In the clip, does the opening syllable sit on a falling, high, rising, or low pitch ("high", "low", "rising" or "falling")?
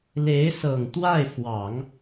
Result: rising